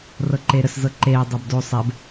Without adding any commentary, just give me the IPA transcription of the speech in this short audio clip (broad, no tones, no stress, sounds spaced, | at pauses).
r ɤ ǃ e ɾ ə s z ɤ ǃ e dˤ ɤ b d o sˤ ɛ b